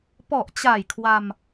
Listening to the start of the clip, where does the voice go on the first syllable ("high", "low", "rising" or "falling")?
low